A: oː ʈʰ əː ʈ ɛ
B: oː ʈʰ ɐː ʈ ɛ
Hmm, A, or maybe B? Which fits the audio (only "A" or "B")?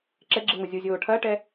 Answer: B